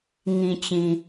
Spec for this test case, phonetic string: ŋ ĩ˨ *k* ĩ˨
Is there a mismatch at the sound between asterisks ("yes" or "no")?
yes